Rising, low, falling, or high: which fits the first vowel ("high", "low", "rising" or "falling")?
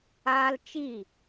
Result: high